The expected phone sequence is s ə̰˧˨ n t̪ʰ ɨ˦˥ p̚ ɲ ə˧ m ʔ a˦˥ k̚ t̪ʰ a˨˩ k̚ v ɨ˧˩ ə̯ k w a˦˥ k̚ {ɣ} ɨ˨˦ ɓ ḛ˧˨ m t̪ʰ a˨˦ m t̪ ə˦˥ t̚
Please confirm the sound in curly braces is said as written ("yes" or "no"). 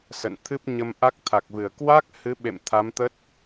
no